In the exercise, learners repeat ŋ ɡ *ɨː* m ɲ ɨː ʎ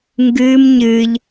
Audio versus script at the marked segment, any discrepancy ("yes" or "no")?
no